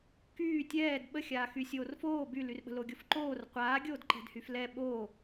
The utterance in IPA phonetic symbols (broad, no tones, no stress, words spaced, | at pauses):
kyː tʲɛːd ɓəxʲaːxy sʲoːrfoː bylyrɓə̤ loɡʲofǃoːr qʷaːɡʲoːd ǃɛ̤dhyflɛ ɓo